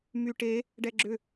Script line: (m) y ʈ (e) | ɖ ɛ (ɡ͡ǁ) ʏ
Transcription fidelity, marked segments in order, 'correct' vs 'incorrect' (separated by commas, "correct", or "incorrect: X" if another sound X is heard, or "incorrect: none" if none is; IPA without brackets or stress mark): correct, correct, correct